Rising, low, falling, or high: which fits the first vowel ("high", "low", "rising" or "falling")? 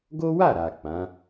high